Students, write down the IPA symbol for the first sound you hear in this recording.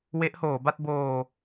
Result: w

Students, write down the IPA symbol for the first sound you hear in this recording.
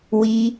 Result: w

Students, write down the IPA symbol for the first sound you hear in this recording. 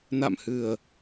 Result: n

